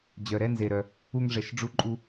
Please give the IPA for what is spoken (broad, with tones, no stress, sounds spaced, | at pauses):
d͡ʑ œ˩ ɾ ɛ˧ n z e˩ ɾ œ˩ | u˧ ŋ ʐ ɛ˩ ʃ ɖ͡ʐ u˧ ǃʼ u˧